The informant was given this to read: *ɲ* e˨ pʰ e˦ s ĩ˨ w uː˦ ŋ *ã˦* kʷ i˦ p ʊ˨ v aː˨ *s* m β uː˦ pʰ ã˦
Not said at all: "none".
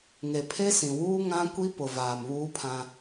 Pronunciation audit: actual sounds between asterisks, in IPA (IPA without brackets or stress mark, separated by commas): ŋ, ã˦, none